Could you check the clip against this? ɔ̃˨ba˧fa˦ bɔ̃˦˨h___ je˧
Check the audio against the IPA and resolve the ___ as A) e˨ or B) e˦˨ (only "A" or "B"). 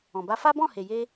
A